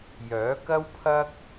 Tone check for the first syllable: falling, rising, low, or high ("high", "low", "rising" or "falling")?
rising